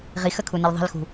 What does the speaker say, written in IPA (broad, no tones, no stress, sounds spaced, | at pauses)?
ʁ i x ə kʰ u n ɘ l ðˤ i̤ l x ṳ